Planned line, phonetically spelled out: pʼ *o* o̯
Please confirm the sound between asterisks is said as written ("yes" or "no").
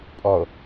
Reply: no